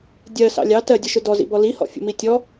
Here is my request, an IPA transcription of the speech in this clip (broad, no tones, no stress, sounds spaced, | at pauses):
dʲ ɜ s ɑ̰ lʲ ɑ t ɜ dʲ ə ʃ ʊ d ɔ z ḭ b ɔ l i h ɔ̰ fʲ ə̰ m i tʲ ɔ